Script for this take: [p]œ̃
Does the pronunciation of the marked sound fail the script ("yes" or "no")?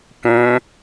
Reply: no